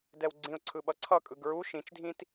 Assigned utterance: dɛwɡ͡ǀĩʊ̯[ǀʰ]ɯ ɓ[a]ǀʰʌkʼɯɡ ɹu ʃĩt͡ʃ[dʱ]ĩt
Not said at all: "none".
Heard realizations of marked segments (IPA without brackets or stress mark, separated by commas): ǀʰ, ʌ, dʱ